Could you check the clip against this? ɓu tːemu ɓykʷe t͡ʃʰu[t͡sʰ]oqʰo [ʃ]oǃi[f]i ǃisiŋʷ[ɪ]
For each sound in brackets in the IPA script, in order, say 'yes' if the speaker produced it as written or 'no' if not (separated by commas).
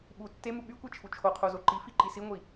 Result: no, no, yes, no